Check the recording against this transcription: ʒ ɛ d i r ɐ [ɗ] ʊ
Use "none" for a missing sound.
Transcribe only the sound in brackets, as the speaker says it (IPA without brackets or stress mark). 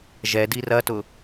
t